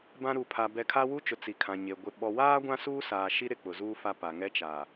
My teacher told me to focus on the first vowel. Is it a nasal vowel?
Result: yes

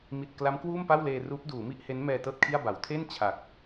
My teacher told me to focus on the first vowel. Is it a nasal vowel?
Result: no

